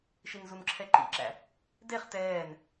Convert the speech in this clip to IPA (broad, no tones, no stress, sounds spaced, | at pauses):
ʃ i n z u n ǁʰ ɛ ǃ ḭ ǁ æ̰ | d e χ t ɛː n